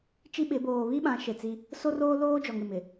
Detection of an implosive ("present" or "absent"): present